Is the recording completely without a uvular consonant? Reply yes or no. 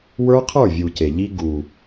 no